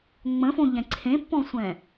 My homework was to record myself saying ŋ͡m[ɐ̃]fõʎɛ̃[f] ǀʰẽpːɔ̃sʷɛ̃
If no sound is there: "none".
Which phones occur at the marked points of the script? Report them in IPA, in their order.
ə̃, none

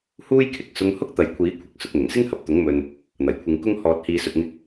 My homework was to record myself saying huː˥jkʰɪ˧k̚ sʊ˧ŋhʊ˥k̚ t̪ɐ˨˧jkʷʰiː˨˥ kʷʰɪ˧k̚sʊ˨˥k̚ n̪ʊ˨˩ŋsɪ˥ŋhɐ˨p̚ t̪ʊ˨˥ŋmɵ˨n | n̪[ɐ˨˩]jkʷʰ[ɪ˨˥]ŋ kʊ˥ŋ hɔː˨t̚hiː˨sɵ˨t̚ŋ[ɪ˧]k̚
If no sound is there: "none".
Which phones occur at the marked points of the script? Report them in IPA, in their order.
ɐ˨˩, ɪ˨˧, ɪ˧

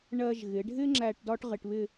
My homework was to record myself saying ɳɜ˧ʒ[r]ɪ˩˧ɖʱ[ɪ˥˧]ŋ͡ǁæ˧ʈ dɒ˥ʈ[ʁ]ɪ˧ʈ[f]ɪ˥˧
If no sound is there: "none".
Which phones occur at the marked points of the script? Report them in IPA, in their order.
ɣ, ɪ˥, ʁ, β

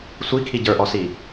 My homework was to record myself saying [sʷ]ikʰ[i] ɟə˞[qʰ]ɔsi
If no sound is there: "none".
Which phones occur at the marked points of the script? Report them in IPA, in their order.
sʷ, i, ʔ

